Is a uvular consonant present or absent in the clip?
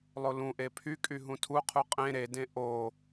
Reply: present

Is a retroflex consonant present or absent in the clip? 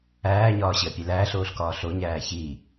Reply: absent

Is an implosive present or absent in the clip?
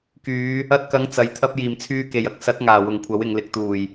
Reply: absent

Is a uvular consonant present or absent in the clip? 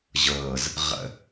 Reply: present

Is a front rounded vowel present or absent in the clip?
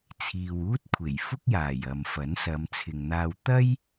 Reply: absent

